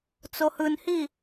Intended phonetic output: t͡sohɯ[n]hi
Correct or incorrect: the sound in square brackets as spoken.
correct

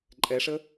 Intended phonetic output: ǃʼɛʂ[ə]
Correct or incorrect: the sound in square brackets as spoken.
correct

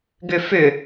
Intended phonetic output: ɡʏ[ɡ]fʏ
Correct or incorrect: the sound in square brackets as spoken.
incorrect: none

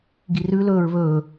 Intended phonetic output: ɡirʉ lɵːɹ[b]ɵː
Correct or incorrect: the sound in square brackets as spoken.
incorrect: β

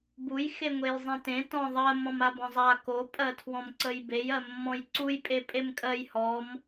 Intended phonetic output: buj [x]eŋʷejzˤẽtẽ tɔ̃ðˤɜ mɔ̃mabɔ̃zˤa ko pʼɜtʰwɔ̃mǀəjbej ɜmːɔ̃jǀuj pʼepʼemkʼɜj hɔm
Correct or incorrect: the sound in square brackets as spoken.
correct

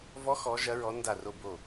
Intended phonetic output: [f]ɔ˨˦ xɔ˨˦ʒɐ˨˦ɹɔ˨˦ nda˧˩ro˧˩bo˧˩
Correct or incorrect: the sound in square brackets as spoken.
incorrect: v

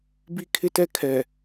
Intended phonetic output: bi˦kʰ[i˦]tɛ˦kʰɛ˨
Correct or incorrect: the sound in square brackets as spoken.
incorrect: ɪ˦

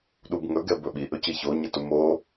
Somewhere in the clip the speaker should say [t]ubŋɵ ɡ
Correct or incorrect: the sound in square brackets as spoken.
incorrect: ɗ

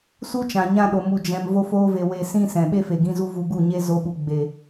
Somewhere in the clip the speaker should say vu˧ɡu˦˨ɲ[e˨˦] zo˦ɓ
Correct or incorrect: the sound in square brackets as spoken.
incorrect: e˦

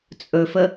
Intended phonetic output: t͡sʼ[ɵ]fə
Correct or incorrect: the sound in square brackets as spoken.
correct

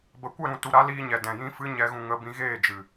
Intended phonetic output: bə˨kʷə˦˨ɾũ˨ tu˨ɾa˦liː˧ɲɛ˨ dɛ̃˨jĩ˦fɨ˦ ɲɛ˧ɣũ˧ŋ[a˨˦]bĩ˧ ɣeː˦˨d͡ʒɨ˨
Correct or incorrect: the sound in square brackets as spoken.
incorrect: ə˨˦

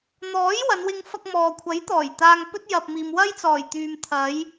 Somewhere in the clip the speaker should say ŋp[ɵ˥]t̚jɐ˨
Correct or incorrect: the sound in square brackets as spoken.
correct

